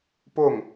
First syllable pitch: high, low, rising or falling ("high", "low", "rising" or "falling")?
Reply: falling